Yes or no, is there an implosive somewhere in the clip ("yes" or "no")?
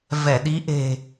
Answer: yes